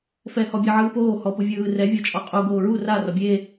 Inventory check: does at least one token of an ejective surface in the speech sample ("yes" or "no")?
yes